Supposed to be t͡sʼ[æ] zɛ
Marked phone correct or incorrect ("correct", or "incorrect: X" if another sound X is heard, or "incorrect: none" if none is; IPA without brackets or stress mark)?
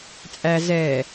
correct